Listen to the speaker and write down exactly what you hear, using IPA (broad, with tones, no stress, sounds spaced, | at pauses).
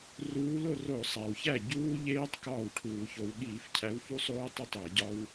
r uː˨˦ l o˥˩ r o˧˩˧ sˤ æ˩ w ç æ˥˩ ɟ uː˦˥ ʎ eː˦˥ tˤ k ɒː˥˩ w ʈʰ uː˧˩˧ ç o˨˦ w ɠ iː˧˩˧ f cʰ æ˨˦ w f u˦˥ sˤ oː˦˥ tˤ e˥˩ tˤ æ˧˩˧ ɟ ɒ˦˥ w